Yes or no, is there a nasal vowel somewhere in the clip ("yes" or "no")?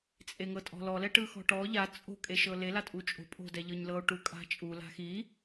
no